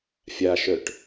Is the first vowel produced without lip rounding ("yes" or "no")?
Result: yes